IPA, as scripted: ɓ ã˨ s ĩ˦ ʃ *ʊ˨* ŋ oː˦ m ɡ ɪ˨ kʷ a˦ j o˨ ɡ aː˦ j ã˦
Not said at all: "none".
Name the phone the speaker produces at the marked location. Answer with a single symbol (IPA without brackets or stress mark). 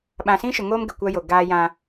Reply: ʊ˨